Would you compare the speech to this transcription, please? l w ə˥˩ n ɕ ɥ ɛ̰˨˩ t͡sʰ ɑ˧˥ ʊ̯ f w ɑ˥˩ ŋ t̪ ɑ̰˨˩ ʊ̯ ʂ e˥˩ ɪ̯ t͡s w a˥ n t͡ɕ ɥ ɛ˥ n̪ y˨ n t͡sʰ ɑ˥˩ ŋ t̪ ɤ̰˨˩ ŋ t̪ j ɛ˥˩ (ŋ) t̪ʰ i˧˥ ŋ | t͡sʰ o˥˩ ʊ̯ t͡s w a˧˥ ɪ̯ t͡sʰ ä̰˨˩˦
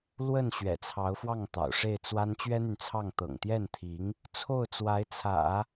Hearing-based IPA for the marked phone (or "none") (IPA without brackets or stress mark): n